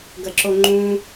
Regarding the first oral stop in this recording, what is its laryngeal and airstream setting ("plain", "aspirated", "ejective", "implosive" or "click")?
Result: plain